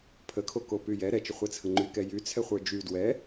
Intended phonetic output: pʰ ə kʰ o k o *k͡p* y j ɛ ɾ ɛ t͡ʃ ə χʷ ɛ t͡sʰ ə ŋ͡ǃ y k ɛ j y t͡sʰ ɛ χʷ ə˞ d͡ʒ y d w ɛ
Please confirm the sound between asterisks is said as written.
no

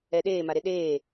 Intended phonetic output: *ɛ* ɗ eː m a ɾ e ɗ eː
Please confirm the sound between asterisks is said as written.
yes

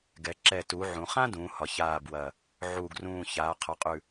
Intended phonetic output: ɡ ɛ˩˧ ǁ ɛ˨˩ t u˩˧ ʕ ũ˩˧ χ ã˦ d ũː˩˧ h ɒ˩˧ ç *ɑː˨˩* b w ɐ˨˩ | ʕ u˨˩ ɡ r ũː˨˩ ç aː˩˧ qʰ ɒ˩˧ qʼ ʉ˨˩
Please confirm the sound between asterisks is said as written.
no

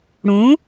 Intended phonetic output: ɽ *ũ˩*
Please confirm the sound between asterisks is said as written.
no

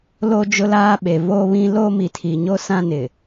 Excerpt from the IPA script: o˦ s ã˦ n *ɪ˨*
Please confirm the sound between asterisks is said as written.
yes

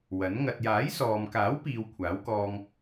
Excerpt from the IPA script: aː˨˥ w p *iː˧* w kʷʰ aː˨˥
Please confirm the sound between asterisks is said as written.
no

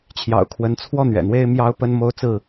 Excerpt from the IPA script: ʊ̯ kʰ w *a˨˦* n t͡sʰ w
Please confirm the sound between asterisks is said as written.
no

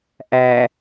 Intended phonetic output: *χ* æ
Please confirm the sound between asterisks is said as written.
no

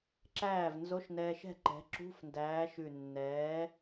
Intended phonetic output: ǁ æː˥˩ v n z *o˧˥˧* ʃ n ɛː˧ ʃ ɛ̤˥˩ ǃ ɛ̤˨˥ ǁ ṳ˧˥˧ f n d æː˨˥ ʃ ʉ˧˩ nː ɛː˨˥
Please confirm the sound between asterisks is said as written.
yes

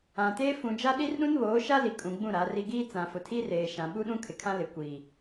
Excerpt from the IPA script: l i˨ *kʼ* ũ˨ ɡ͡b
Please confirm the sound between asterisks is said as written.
yes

